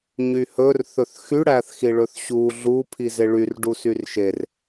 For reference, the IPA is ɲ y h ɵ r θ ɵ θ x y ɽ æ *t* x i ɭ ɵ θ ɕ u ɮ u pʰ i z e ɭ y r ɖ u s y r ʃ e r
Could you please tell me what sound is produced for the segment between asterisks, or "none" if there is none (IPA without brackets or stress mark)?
θ